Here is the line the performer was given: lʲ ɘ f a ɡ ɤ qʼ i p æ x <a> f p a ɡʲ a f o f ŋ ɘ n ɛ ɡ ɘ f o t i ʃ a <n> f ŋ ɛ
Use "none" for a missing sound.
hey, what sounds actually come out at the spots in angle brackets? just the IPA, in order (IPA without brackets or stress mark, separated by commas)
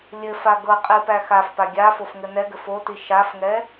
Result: a, none